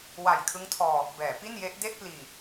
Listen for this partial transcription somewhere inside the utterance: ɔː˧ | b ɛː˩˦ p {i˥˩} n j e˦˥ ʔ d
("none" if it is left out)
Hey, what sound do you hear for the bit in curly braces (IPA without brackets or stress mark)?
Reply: i˥˩